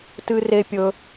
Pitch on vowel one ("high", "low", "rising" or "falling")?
high